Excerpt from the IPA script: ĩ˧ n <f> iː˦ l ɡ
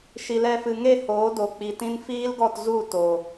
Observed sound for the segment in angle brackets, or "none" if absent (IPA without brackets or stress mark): f